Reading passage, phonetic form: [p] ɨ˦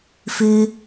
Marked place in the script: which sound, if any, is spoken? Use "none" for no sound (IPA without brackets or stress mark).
f